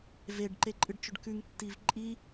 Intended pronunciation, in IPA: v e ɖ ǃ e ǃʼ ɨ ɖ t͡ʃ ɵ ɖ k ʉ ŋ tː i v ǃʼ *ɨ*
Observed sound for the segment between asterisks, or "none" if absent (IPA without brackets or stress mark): i